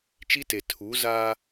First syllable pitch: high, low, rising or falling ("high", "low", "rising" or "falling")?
high